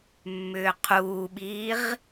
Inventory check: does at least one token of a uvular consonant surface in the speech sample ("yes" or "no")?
yes